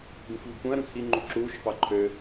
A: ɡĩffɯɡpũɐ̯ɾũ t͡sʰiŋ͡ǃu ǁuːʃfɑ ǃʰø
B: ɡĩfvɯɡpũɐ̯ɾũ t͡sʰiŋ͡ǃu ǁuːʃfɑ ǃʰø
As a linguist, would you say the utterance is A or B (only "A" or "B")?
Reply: B